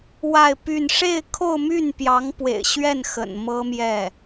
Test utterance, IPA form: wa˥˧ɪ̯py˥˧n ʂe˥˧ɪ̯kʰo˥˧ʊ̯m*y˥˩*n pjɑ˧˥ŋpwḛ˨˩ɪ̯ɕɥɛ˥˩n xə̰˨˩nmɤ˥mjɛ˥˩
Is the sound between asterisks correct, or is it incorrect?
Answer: correct